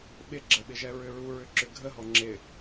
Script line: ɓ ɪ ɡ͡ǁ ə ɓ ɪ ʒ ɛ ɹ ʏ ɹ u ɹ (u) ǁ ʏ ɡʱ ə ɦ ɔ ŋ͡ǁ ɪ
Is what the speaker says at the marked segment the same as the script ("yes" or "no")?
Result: no